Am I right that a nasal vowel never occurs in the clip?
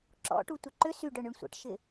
yes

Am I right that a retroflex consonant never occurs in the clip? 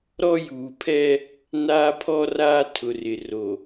yes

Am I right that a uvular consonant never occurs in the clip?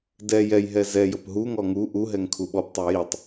yes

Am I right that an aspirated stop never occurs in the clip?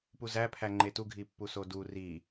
no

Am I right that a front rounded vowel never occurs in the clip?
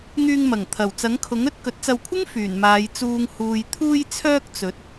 no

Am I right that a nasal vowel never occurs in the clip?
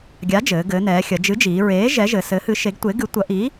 yes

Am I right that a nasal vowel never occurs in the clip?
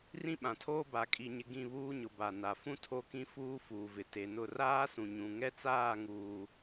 no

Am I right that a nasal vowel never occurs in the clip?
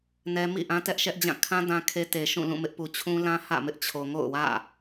no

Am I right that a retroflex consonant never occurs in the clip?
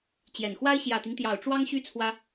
no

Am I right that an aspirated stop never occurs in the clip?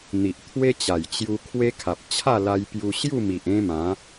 no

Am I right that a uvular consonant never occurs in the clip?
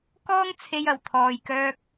yes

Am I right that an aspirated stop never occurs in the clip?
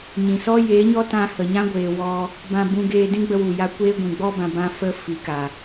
yes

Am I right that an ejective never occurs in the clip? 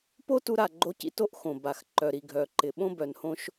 yes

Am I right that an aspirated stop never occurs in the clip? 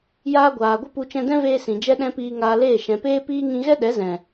yes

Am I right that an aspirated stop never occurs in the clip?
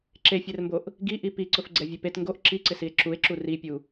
yes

